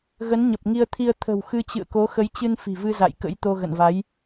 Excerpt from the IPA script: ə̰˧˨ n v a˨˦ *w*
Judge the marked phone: incorrect: j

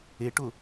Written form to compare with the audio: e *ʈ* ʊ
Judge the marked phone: correct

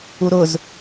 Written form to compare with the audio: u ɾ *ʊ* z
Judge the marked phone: correct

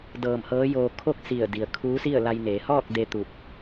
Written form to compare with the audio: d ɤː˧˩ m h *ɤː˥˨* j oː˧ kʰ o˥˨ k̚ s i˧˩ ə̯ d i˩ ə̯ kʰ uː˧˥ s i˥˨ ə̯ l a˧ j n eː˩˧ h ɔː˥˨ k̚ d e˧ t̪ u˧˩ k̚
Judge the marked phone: incorrect: ɤː˧˥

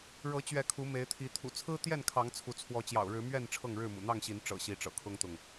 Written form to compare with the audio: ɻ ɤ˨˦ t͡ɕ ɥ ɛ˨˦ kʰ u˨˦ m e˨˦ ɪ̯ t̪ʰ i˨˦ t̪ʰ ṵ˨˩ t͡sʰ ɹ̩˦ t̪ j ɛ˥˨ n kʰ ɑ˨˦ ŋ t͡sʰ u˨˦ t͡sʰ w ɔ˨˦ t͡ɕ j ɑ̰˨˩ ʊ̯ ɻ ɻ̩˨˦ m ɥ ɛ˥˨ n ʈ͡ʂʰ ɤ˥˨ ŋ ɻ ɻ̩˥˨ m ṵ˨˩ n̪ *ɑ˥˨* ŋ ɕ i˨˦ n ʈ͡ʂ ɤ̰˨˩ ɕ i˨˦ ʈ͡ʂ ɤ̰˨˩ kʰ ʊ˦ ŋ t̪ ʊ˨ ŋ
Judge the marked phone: correct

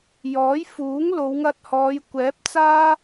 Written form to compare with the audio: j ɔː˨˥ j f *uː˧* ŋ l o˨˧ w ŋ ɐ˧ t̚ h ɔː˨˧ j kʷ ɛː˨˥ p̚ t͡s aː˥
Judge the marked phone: incorrect: uː˨˥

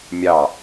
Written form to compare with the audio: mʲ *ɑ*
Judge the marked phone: correct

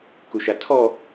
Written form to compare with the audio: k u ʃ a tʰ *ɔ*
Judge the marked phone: correct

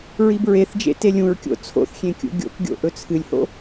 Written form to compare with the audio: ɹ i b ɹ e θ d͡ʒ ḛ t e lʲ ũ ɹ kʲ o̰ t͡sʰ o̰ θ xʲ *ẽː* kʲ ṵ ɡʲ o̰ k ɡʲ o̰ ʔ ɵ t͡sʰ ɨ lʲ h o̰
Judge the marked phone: incorrect: ẽ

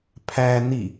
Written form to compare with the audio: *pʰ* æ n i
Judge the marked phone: correct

